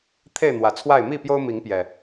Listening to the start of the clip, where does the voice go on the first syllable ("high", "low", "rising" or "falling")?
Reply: falling